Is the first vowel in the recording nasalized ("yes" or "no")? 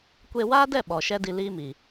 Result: no